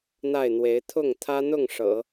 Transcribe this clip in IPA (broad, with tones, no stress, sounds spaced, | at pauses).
n̪ a˥˩ ɪ̯ n̪ w e˧˥ ɪ̯ t̪ʰ ʊ˥˩ ŋ t̪ʰ ä˥ n̪ ʊ˥˩ ŋ ʂ ɤ̰˨˩˦